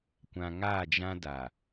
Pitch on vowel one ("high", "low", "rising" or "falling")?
low